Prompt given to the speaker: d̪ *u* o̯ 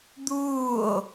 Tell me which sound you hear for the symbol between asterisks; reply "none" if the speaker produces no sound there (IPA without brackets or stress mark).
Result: uː